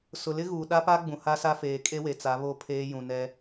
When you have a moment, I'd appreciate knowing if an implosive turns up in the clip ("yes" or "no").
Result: yes